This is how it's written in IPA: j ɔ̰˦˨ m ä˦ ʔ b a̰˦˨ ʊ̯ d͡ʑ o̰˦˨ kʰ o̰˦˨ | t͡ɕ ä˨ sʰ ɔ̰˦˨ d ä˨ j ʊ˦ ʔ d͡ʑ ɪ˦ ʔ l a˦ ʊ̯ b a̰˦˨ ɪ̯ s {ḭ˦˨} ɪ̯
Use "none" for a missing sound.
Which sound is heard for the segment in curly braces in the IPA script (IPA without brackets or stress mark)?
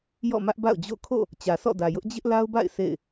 ḛ˦˨